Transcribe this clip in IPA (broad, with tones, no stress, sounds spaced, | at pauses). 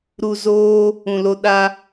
ɾ u˧ z oː˦ | ũ˧ l o˦ ɗ a˦